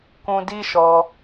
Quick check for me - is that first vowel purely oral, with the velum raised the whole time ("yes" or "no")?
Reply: no